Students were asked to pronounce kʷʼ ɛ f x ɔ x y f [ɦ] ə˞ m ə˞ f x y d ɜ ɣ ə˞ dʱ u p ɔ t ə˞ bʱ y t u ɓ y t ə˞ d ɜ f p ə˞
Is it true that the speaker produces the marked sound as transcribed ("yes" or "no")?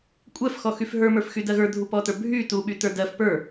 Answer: yes